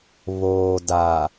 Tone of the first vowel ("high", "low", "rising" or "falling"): low